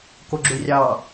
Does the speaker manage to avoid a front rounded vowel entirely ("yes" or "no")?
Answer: no